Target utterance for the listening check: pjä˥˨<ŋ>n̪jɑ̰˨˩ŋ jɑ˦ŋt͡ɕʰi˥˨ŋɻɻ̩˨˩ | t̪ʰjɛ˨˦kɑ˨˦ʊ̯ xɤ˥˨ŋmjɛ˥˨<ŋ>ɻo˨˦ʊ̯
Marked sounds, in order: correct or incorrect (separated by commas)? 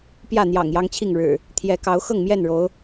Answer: incorrect, incorrect